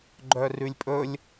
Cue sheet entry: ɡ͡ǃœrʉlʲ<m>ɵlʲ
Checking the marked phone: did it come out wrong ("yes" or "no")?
yes